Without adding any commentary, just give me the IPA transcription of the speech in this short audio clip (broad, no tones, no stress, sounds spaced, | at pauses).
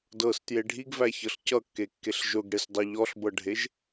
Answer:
d ɤ s t j e ɖʱ i ɡ v æ ç ɤ ɬ c ʌ kː e kː e ɬ ʒ ʊ ɡ ɽ e s dˤ i ʎ ɔ ɬ b ɤ ɖʱ e ʒ